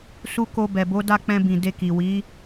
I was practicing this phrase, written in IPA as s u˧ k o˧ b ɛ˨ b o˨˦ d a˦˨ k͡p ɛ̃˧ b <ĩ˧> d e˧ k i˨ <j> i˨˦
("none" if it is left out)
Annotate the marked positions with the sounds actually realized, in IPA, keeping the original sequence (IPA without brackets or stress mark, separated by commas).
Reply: ĩ˨, w